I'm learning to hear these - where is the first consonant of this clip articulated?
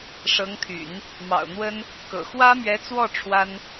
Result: retroflex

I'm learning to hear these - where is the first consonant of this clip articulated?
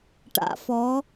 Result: retroflex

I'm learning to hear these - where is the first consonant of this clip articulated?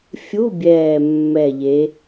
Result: lips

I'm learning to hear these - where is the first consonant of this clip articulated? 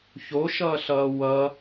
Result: palate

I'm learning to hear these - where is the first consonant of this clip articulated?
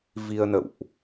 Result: lips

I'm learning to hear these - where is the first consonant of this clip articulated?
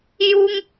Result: palate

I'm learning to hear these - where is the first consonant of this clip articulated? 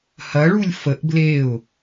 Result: throat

